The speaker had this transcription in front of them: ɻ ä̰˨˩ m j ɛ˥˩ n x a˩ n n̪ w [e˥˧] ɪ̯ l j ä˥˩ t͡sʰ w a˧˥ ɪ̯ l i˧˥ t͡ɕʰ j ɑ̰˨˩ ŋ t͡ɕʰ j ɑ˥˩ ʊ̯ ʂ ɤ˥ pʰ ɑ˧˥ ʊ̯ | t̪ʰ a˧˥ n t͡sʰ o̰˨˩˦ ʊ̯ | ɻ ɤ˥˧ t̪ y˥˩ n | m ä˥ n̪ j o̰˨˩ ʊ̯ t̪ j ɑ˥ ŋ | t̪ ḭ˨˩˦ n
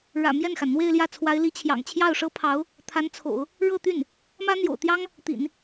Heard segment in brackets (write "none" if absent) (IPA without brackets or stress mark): e˥˧